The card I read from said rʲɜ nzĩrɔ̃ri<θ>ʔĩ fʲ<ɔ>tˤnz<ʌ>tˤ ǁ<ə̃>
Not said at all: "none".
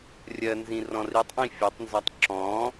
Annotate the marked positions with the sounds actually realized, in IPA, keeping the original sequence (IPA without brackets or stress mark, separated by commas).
tˤ, ɔ, ɒ, ɔ̃